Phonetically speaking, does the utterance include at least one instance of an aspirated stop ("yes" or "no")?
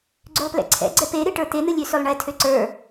yes